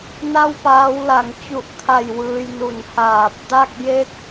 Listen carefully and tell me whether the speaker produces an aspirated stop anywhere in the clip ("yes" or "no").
yes